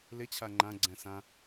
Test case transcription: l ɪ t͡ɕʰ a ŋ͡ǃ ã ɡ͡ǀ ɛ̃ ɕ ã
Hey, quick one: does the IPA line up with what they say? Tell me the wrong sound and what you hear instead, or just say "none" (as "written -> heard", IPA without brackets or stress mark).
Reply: ɕ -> s